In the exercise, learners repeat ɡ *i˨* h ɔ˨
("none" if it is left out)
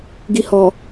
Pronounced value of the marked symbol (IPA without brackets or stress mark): i˨